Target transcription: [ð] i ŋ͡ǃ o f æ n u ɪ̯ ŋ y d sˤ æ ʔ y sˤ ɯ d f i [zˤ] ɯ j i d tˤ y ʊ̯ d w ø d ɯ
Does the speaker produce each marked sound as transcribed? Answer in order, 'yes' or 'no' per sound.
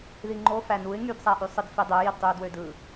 yes, no

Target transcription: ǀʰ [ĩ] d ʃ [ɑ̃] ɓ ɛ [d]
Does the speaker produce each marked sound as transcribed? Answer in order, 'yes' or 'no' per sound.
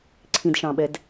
yes, yes, yes

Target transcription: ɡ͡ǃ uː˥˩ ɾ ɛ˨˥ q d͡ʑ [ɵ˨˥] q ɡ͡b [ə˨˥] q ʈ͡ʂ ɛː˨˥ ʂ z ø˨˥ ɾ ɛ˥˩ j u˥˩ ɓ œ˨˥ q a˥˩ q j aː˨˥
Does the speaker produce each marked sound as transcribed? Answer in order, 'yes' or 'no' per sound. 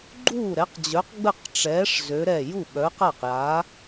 no, no

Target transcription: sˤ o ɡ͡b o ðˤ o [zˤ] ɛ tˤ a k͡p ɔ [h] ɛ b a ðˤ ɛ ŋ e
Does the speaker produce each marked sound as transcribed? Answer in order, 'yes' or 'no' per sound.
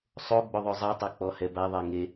yes, yes

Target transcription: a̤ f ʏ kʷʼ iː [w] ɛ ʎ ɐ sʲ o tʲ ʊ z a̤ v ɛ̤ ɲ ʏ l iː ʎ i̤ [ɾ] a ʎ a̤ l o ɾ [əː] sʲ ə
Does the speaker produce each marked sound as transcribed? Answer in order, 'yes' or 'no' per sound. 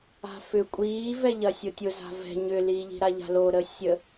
no, yes, yes

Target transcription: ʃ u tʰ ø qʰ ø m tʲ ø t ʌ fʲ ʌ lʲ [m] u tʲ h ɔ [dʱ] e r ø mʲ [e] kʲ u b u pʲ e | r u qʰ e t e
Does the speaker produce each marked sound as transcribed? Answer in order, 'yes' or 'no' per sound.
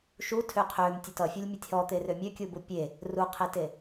no, no, no

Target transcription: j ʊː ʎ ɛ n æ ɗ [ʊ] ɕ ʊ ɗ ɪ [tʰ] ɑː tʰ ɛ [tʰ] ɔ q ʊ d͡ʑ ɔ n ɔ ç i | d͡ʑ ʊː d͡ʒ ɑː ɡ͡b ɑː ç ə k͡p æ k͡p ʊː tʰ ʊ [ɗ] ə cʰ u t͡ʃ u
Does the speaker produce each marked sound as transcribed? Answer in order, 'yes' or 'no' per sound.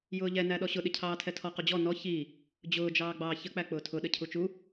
no, no, yes, yes

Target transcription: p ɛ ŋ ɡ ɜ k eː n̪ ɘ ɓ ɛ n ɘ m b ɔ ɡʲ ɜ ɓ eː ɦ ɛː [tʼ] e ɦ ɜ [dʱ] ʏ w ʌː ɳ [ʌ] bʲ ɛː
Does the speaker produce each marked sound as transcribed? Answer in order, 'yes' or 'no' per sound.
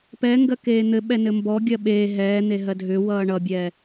no, yes, yes

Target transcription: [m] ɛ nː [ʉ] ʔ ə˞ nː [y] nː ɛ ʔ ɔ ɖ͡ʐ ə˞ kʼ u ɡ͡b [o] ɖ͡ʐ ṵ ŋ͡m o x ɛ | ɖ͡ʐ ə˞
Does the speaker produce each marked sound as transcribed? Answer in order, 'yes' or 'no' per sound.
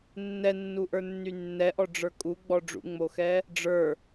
no, no, yes, no

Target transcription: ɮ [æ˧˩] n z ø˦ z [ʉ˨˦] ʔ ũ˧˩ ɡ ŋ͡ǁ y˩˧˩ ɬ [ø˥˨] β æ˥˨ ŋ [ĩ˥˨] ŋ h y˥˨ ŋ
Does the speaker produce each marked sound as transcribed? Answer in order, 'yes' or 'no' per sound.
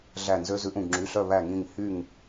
yes, yes, no, yes

